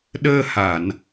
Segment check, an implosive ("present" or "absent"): present